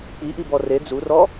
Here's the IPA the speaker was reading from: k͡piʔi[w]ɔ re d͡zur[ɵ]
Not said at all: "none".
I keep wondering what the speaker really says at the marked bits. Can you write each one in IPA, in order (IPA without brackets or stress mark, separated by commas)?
b, ɔ